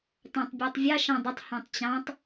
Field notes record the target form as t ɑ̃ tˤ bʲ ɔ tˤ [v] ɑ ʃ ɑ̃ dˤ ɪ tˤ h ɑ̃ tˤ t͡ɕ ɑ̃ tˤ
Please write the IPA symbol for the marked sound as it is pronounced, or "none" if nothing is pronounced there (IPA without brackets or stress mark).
vʲ